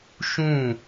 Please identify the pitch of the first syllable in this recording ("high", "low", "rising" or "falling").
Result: falling